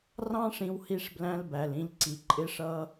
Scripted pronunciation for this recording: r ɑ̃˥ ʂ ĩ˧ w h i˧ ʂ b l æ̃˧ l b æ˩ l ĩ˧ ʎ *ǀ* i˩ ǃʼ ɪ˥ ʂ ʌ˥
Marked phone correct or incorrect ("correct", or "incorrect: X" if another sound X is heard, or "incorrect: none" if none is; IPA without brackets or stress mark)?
correct